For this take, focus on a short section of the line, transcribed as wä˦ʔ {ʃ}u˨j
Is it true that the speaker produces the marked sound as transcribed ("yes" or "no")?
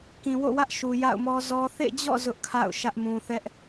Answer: yes